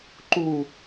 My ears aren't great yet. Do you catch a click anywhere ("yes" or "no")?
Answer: yes